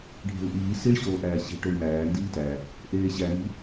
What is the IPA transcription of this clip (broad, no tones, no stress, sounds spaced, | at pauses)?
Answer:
ɖʱ e̤ u̯ ʔ iː s i ɭ ɕ oː ʔ æː ɕ i̤ ʈ o i̯ m æː n d iː t æ | ʔ eː ɕ æ n i̤